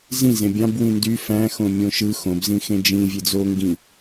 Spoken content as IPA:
z ĩ z ẽ bʲ ɑ̃ b w ĩ n d y f æ̃ x õ mʲ õ ʃ ɯ x õ b z ĩ x ẽ d͡ʒ ĩ vʲ e d͡z o ŋ ɡ ĩ

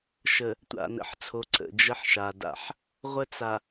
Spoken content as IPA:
ʃ ə˨ | tʷ a̰˨ n ə̰˨ ħ t͡sʰ o˨ ǀ ə̰˨ d͡ʒ ə˦ ħ ʃ a˨ d a̰˨ ħ | ʁʷ ə˦ t͡s a˨

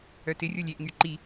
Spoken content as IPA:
œ t ɪ rʲ o lʲ e ʔ ŋ y ǃ i

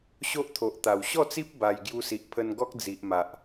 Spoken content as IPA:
ɕ o˦ ʔ t̪ʰ o˨ ʔ t̪ a˨˩ w ɕ ɔ˥˧ t͡s i˦ p̚ b a˧ j ɡ j u˧ s i˨ ʔ pʰ ə˧ n ɡ ɔ˦ k̚ d͡z i˨ ʔ m a˨ ʔ

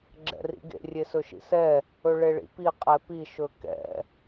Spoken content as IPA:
ɡ͡ǁ ɛ̰ r ḭ ɡ ḛ rʲ e s ɵ ʃ ḭ s ɛ | ɵ ɭ e ɭ ḭ p i qʼ ɛ p i ʃ ɵ k ɛ̰

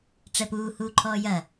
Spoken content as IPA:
ʈ͡ʂ ɛ p uː h uː ǃʰ ɔː j ɐ

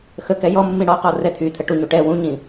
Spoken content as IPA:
x ə k ɛ j ɔ mː ĩ ɽ ɔ q ɔ r ɛ t̪ʰ y t̪ʰ ə ʈ u ɲ u ʈ ɛ w ũ ɲ ĩ

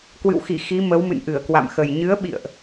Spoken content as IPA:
k w ɨ̰˧˨ w x i˧˩ x i˨˦ m ə˨˦ w m ɨ̰˧˨ n ʔ ɨ˧˩ ə̯ k w a̰˧˨ m x ə˨˩ j ɲ ɨ˨˦ ə̯ ɓ ḭ˧˨ ə̯ ʔ

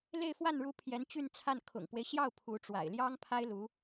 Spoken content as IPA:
l e˥˧ ɪ̯ f w a˥˩ n ɻ u˧˥ pʰ j ɛ˧˥ n t͡ɕ y˥˧ n t͡sʰ a˥˩ n kʰ ʊ̰˨˩ ŋ p w e˦ ɪ̯ ɕ j ɑ˥˩ ʊ̯ pʰ u˧˥ ʈ͡ʂ w a̰˨˩ ɪ̯ l j ɑ˥ ŋ pʰ a˥ ɪ̯ l u˧˥

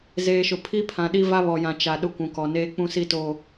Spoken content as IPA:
z eː˨ ʃ ʊ˨ pʰ i˦ pʰ ã˨ ɗ i˦ v a˦ β ɔ˨ j ã˨ t͡ʃ a˨ ɗ ʊ˦ kʷ ũ˨ k ɔ˨ n eː˦ k͡p ũ˦ s i˦ t oː˨

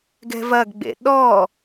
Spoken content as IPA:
ɡ ɛ̤ v ɐ ɡ ɡ͡b ḛ ɗ ɔ

